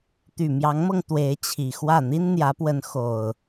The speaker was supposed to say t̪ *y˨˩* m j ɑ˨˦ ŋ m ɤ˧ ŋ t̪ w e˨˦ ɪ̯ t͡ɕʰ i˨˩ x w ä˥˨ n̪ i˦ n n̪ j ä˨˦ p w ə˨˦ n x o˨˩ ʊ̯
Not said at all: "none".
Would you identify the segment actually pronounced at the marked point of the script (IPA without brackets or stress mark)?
y˨˩